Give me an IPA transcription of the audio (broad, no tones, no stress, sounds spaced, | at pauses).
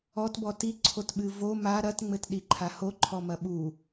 ɔ t b ɔ t i ǀʰ o t ɓ ɨ v o m a ɾ ɐ t ŋ͡m ɘ t ɗ i ǃʰ a h o ǃʰ ɔ m ɐ ɓ u